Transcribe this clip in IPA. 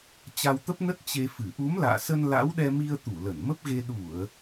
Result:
t͡ɕ a˧ w t̪ ə˦˥ p̚ n ə˦˥ t̚ t͡ɕ e˧ f ɨ˧˩ ʔ u˨˦ m l a̰ː˧˨ s ə˧ n l a̰˧˥ w ɗ ɛ˧ m i˧ ə̯ t̪ u˧˩ l ə˧˩ n m ə˦˥ p̚ ɣ e˧ ɗ u˧˩˨ ə̯

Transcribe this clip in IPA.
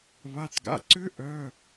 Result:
β a˩˧˩ t ɡ a̰˩˧˩ ǀ ʏ˦˥ ʔ œ˩˧˩

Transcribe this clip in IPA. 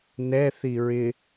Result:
n ɛ θ i ɹ ɪ

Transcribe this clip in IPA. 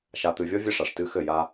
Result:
ʃ a˨ t̪ ɨ˨ vʲ ɔ˦ vʲ ɘ˦ ʂ a˨ ʂ t ɨ˦ x ɘ˦˨ j a˦

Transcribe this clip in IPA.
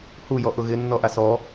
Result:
h u j ɔ ʔ ʊ ɣ ɪ nː ɔ ʔ a s ɔ

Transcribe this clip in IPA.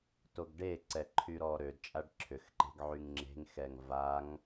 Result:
t o ɡ ɖ e ǀ ɛ ǃʰ y ɾ ɔ ɾ ø d t͡ʃʼ a ɖ ǁʰ ʏ x ǃ e̤ ɡ ʕ y ŋ ŋ͡ǁ e̤ ŋ x ɛ ŋ v a ŋ

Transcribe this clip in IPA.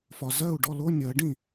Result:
f ɒ˨ z ɜ˥˩ u̯ ɖ ɔ˥˩ l o˧˥˧ nʲ ɜ˨˩˦ ɖ ĩ˥˩

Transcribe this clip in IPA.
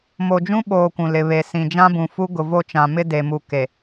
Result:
m o˨ d͡ʒ ũ˦ ɓ oː˨ kʷ ũ˨ l ɪ˨ β e˨ s ĩ˨ d͡ʒ ã˦ b ũ˨ f u˦ ɡ ʊ˨ v o˦˨ t͡ʃ ã˨ m ɪ˦ d e˨ m u˨ k e˨

